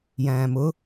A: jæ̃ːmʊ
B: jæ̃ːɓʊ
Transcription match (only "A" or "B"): A